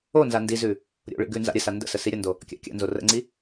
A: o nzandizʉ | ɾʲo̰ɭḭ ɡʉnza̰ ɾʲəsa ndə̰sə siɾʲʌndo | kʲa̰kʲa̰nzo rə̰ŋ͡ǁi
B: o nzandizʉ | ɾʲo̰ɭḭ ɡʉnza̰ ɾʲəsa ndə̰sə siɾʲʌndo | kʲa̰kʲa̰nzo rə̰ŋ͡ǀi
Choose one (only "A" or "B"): B